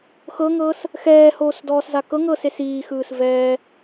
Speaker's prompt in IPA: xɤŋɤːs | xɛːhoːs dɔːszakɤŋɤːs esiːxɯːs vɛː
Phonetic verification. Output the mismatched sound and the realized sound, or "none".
none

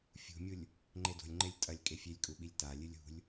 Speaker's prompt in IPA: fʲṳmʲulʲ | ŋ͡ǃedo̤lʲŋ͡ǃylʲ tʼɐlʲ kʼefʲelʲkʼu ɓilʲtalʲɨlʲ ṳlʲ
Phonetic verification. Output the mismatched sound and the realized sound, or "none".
y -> e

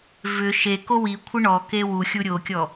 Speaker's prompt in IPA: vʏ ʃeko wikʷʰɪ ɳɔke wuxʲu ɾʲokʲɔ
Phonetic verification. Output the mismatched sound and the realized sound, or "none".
none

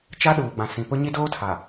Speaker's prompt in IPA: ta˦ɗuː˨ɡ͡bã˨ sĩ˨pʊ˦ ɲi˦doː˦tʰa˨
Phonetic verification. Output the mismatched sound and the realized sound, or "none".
t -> t͡ʃ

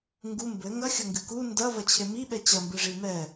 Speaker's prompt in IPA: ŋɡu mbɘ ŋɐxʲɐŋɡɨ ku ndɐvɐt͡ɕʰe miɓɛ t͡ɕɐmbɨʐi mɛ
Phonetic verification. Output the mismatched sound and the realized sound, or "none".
none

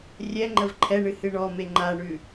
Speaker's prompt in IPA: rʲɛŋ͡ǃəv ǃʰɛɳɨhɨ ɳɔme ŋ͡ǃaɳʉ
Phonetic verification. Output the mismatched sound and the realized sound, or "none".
none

